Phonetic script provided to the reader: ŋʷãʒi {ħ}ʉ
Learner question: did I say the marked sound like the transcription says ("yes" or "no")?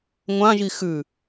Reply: no